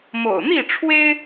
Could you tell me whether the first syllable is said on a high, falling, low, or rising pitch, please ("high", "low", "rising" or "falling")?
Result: low